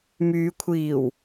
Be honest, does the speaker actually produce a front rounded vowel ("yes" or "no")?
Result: yes